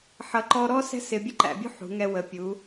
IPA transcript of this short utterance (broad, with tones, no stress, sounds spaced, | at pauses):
ħ ʌ˩˧ ǃ ɔ˧ ɾ ɔ˥ s ɛ̤˥ s ɪ˧ bʲ ə˥ ǃ æ̰˩˧ bʲ ṳ˥ ħ ṳ˩˧ ŋ ɛ˧ w ə˩˧ pʲ u˩˧